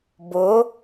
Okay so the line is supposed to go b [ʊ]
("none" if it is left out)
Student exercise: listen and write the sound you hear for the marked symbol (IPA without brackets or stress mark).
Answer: ʊ